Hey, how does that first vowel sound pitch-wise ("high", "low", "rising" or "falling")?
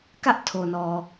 high